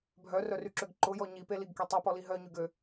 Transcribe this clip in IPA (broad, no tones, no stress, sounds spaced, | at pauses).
bʱ œ r œ r y ǁ ø ɡ ǃ ʊ j ɔ ɲ i p e l i ɡ k e tˤ y p ɔ l i ɦ œ ɲ y ɡ ø